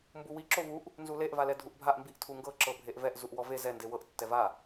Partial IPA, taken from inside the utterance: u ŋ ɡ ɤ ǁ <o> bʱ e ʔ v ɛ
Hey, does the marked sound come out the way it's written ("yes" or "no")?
no